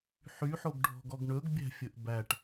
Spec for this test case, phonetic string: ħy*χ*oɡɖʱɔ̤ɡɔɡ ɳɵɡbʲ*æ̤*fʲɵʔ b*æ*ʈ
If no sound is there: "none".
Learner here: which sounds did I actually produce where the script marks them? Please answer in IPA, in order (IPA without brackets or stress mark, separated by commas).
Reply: ħ, æ̤, æ